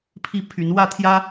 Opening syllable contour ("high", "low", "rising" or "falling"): falling